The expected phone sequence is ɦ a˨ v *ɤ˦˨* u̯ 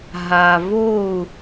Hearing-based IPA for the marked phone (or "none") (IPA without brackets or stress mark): o˦˨